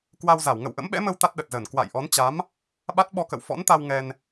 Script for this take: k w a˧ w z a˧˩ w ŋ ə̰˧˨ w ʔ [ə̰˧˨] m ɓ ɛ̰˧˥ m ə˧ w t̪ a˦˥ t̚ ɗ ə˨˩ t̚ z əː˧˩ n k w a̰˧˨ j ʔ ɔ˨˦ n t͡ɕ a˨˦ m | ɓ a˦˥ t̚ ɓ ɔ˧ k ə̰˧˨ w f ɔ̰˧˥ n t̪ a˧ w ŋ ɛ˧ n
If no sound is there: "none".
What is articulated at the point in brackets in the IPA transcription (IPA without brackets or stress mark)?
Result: ə̰˧˥